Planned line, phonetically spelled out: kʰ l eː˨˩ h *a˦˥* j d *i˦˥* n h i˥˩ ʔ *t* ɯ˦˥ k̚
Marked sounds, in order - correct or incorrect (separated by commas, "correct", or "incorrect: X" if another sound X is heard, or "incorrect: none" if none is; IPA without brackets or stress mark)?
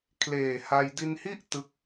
incorrect: a˧, incorrect: i˧, correct